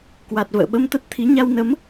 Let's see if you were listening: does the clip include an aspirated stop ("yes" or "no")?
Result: yes